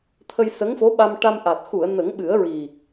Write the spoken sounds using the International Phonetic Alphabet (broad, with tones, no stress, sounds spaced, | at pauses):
t̪ʰ ə˧ j s ə˧˥ ŋ f o˧˥ ɓ a˧ m ʈ a˧ m ʔ a˨˩ t̚ x u˨˩˨ ə̯ n ə˨˩˦ ŋ ɓ ɨ˨˩˦ ə̯ ɹ i˨˩